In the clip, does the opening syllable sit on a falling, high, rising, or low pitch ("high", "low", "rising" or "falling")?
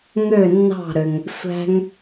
falling